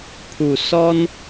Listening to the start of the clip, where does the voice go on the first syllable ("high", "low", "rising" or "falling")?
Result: low